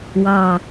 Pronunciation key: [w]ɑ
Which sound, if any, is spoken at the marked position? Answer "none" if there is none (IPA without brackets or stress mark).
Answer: w